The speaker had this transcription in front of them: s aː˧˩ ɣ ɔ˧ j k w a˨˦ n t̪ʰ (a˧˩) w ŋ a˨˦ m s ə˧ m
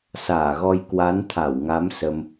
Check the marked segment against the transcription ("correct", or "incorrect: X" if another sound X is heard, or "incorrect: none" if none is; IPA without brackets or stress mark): correct